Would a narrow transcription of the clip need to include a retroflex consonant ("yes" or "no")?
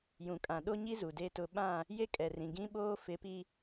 no